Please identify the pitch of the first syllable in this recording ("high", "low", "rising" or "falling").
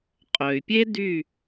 low